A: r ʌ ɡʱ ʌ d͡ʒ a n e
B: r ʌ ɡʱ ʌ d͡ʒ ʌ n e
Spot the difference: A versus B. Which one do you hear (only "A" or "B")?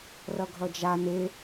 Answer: A